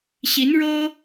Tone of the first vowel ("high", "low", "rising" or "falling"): rising